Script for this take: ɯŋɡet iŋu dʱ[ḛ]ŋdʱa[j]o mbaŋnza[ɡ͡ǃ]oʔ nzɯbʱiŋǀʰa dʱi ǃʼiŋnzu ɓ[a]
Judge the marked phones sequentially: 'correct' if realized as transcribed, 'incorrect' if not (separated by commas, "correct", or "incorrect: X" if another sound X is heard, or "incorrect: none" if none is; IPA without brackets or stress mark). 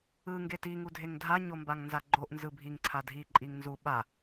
incorrect: e, incorrect: ɲ, correct, correct